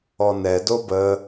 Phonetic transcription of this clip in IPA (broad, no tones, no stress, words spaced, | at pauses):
ɔnɛdo bə